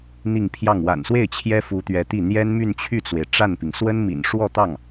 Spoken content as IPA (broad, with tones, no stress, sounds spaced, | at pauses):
n̪ i˥˧ ŋ pʰ j ɑ˥˩ ŋ w a̰˨˩ n s w e˥˩ ɪ̯ t͡ɕʰ j ɛ˥ f u˧˥ t̪ ɥ ɛ˧˥ t̪ i˥˩ n̪ j ɛ˥ n m y˥˧ n t͡ɕʰ y˥˩ t͡s w e˩ ɪ̯ ʈ͡ʂ a˥˩ n p i˩ ŋ s w ə˥ n m ḭ˨˩ n ʂ w ɔ˥˧ t̪ ɑ˥˩ ŋ